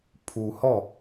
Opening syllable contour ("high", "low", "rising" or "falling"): low